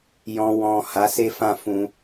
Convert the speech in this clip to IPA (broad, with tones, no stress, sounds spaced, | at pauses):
j ɔ̃˧ w ɔ̃˨ h a˨˦ s e˦ f ã˦˨ f ũ˧